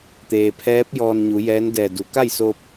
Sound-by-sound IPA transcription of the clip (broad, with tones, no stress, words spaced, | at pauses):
t̪eː˩pʰɛː˧˥p̚ jɔː˧nɲu˩˧jɛː˧˥n dɛː˧˩du˩˧ ka˥˨jso˧p̚